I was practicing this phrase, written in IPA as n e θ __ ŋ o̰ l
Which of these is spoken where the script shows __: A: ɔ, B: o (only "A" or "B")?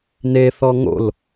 A